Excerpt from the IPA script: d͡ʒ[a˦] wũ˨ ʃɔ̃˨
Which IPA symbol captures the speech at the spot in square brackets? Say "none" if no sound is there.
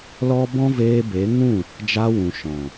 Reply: a˧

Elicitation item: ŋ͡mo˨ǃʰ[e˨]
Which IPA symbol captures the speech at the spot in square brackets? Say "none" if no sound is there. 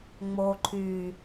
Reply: y˨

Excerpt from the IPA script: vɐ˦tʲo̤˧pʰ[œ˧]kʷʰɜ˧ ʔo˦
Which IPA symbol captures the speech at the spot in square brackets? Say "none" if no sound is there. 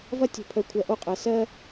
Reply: œ˧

